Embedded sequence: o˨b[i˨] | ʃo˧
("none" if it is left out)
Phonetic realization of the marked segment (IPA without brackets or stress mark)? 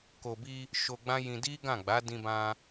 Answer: i˧